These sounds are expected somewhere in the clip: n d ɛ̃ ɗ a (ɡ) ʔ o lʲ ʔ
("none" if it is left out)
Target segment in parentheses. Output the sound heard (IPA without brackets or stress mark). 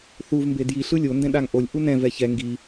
ŋ